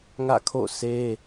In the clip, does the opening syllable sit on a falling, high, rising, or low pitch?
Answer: falling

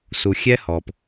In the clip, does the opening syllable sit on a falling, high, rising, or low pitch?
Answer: low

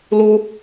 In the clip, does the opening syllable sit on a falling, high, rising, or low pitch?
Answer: high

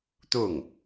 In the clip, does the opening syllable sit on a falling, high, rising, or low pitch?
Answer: falling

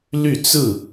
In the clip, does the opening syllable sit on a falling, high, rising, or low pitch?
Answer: falling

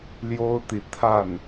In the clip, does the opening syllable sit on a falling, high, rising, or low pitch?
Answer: high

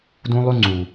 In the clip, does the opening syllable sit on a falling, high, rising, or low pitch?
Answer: high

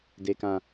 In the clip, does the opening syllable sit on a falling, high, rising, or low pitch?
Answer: low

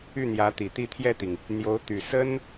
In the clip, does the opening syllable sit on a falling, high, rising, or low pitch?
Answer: falling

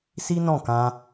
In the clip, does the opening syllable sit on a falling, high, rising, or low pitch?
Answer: high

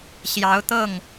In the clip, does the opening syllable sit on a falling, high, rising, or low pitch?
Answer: rising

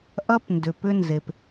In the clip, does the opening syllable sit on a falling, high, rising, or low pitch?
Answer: high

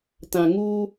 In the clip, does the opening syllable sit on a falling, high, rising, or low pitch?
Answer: low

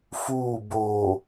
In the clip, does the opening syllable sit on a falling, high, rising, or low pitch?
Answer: falling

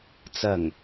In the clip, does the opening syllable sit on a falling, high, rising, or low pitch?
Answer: low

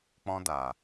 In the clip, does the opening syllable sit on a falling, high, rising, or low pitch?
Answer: high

